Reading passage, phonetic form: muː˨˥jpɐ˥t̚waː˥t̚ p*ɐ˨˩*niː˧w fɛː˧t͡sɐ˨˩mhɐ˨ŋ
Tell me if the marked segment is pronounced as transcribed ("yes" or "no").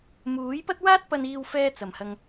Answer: no